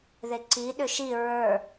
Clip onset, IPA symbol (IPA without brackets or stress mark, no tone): ð